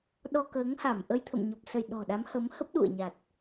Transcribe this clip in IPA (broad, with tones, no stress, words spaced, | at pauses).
ɗɔ˧kəː˨˦ŋha˧˩mʔə˧j t̪ʰə̰˧˨mɲɔ˨˩p̚sə˧˩j ɗɔ̤˨˩ɗa˨˦mhə˨˦m hə˦˥p̚ɗṵ˧˨ə̯ɲa˨˩t̚